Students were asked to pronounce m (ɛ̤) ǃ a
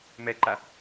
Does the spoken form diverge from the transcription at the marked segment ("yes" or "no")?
yes